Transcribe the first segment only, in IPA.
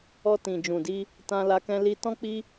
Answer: ɔ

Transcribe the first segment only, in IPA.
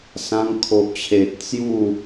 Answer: s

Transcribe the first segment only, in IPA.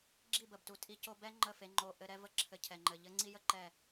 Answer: ɡ͡ǁ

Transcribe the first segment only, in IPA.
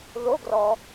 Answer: ð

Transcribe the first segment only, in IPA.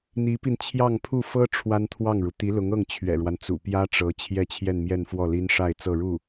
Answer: n̪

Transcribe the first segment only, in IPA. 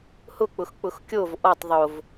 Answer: h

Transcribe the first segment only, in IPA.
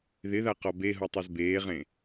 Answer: ð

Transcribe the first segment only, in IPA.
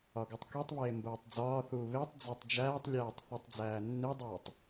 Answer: ɒ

